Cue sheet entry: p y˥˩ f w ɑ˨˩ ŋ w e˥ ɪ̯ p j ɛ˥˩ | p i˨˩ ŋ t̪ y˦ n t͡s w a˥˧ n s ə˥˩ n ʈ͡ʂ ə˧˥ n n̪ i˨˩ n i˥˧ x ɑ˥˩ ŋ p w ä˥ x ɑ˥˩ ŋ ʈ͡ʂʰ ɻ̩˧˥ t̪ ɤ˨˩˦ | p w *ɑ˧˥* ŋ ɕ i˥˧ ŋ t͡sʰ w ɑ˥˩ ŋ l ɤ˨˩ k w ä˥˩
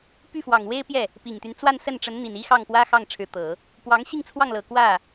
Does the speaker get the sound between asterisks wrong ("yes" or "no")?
no